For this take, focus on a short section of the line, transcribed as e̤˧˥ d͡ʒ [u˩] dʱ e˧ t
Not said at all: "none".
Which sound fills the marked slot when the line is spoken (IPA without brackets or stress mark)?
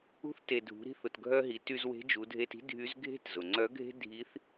u˩˧